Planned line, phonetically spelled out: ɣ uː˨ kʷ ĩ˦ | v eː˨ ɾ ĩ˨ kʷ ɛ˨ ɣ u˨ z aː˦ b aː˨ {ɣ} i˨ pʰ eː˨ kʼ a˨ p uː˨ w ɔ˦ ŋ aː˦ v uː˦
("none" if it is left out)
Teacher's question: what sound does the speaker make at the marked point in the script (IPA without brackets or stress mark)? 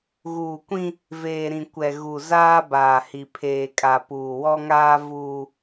h